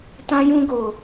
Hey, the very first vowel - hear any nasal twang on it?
yes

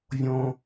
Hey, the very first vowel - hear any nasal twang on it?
yes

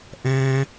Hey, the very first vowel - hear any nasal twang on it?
yes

